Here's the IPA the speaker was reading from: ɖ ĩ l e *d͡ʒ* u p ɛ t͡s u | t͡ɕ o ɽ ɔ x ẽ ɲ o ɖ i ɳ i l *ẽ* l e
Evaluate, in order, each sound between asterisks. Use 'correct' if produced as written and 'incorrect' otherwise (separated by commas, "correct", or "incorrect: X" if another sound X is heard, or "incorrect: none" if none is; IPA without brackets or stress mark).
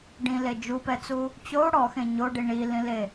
correct, incorrect: ĩ